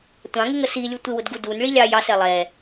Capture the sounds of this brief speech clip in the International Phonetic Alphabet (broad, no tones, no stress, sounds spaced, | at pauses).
tʷ ɑ̃ ŋ ɪ ŋ ə s i lʲ u tʷ ɪ w ʊ d ɡ u d u n ɭ i lʲ ɑ j ɑ s ɛ lˠ ɛ